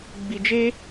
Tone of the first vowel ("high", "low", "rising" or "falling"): low